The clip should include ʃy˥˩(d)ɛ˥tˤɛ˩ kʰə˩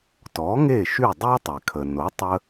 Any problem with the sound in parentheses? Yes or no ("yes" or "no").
yes